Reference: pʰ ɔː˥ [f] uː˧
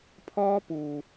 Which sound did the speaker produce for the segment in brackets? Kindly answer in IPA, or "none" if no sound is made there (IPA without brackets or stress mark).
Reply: p